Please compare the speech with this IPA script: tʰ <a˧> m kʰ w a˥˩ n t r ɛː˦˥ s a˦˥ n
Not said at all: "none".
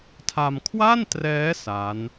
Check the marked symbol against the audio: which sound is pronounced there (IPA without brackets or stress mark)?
a˧